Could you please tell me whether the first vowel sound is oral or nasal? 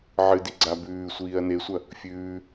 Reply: oral